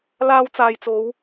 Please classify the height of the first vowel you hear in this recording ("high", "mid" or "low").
low